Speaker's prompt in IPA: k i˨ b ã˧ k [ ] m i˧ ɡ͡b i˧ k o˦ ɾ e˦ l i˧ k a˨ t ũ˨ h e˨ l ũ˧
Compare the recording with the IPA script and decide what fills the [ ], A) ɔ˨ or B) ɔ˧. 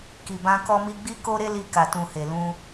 B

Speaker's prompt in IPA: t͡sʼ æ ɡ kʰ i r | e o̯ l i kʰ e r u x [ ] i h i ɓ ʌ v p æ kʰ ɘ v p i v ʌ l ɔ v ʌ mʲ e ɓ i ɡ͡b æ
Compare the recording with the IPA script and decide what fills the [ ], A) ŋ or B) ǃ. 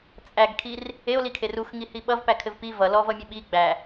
A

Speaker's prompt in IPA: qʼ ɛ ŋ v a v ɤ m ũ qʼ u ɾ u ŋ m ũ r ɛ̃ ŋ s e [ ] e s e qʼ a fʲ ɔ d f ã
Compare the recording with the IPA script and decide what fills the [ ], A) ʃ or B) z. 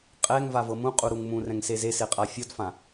B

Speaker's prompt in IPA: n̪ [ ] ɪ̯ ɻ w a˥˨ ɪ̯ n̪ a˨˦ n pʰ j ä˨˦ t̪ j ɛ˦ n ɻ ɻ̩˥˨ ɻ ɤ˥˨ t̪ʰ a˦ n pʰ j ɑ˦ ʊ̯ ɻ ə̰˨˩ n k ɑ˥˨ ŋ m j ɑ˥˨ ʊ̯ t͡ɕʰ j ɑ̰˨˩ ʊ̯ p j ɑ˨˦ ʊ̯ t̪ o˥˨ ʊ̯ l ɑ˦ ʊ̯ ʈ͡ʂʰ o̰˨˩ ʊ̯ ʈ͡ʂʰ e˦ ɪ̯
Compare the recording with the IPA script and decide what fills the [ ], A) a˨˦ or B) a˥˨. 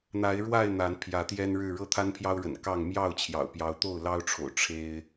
A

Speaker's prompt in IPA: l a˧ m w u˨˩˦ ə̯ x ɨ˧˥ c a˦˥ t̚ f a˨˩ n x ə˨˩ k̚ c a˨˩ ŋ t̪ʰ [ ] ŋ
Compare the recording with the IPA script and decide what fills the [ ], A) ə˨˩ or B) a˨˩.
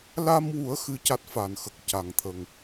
A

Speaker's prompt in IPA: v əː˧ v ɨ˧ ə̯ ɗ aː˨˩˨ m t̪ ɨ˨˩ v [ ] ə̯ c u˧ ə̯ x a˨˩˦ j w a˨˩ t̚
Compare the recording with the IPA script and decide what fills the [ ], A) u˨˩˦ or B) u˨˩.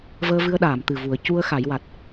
A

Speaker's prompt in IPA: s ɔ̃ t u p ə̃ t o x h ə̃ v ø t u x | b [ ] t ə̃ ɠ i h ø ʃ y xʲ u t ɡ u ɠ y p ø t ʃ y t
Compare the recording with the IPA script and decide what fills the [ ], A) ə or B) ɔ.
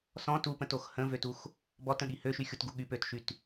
B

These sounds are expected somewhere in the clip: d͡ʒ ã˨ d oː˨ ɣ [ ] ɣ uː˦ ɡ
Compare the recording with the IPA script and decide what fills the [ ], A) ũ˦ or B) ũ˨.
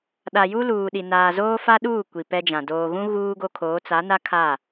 A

